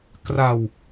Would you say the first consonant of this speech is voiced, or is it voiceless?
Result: voiceless